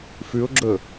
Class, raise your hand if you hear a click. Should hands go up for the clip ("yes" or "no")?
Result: yes